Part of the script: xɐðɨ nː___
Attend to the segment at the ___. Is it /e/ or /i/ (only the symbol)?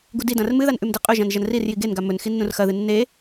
e